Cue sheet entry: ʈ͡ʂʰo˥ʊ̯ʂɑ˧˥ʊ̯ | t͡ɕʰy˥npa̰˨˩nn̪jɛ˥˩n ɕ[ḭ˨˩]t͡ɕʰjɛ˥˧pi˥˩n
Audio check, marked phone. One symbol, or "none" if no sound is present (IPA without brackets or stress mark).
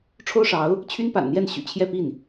y̰˨˩